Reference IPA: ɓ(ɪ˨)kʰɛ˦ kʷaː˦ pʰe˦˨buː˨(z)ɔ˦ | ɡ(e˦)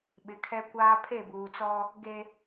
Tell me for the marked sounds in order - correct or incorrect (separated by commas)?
incorrect, incorrect, correct